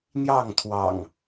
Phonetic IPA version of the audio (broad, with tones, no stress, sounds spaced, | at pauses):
n̪ j ɑ˥˨ ŋ t̪ʰ w ɑ̰˨˩ ŋ